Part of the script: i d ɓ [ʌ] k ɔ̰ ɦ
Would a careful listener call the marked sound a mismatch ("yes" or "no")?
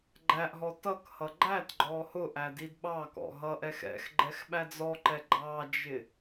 yes